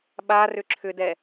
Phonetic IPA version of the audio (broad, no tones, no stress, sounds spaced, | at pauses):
ɓ a r ʏ ǁʰ ʏ d ɛ